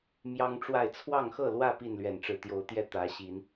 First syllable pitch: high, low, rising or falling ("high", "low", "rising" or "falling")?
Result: high